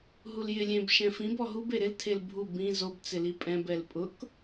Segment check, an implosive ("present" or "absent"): absent